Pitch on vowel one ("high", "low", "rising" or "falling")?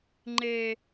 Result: high